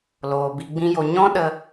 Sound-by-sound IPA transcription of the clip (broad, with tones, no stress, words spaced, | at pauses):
loː˨bi˧ɡ͡bĩ˦jo˧ ɲɔ̃˦ɗə˧